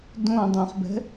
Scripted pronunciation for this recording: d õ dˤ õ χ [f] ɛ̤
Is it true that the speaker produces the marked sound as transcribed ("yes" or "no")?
no